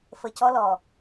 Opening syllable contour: low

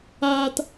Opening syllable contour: low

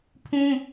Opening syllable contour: high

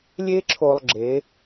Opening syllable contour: high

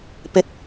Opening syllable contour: rising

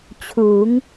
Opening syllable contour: rising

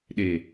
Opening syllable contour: low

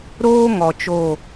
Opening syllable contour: high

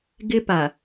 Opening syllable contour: high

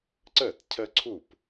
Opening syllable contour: falling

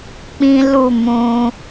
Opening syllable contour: high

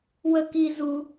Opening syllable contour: high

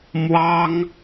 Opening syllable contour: high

